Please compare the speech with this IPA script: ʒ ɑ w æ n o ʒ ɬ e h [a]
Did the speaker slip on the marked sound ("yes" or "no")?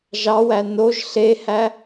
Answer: yes